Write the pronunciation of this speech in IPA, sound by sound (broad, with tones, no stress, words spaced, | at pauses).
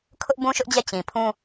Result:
kʰʊ˦ʔ bũ˦ʃʊ˦ʔd͡ʑɛ˦˨ t͡ɕĩ˨pʰũ˦